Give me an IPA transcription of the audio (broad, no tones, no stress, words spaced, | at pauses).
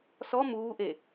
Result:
sɔ muːʔe